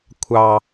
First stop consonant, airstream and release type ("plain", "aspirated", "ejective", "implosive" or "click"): aspirated